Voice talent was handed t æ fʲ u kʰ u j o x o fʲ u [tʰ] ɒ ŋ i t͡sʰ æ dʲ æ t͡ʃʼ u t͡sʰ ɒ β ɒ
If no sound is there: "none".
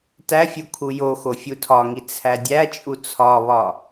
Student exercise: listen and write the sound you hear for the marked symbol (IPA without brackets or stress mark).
tʰ